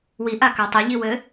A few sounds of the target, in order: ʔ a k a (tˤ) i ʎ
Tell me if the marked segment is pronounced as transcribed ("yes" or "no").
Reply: yes